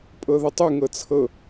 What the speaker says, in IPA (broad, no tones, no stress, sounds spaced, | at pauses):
pʼ ɤ ð ə tˤ u ŋ ɤ t͡sʰ ɤ